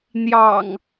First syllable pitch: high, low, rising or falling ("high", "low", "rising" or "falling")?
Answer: low